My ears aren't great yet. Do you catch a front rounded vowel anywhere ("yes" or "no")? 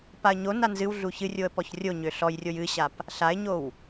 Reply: yes